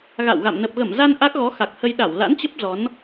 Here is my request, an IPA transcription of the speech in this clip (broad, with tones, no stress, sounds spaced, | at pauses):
ɣ a̰˧˨ w ɣ a̰˧˨ m n ə˨˩ p̚ ɣ ə˧˩ m z a˧ n ʔ a˦˥ k̚ ɣ ɔ˨˦ x a˨˩ k̚ h ə˧ j ɗ a˧˩ w l a̰˧˥ n t͡ɕ ə˦˥ p̚ z ɔ˨˦ n